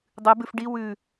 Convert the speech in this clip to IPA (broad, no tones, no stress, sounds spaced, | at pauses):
dˤ ɨ b ʉ f ɖ i w ʉ